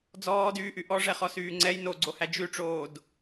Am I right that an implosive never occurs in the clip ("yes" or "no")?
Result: yes